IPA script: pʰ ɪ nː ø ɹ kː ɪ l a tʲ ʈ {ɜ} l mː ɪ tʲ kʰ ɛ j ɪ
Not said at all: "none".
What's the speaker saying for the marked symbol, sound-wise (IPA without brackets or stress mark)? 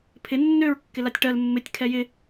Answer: ɜ